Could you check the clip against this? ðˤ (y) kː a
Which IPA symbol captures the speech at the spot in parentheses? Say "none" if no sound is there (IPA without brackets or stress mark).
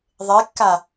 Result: e